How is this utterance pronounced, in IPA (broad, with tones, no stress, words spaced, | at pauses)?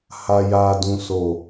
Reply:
ha˨ja˨dũ˨so˨